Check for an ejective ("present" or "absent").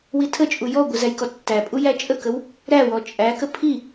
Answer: present